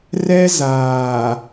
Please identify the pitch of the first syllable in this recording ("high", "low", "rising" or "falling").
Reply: high